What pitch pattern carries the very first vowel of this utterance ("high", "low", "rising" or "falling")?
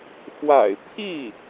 low